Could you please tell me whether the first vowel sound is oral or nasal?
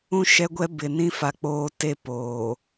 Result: nasal